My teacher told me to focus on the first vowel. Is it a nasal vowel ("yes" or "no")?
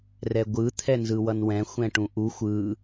no